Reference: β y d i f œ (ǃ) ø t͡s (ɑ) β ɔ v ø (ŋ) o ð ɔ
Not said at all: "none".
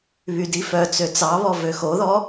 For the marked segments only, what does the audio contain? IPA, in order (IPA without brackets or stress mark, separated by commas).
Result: t͡s, ɑ, x